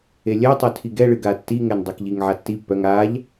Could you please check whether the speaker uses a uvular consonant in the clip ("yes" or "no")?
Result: no